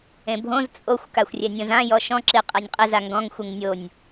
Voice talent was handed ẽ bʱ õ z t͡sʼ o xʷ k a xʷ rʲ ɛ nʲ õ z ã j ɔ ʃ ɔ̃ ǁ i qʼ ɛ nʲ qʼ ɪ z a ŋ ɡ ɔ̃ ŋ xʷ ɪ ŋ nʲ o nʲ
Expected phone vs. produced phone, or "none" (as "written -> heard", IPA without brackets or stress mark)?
none